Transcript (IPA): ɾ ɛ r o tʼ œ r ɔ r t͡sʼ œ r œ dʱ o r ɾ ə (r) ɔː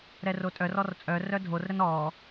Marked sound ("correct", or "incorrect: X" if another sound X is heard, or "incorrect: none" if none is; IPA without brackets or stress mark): incorrect: n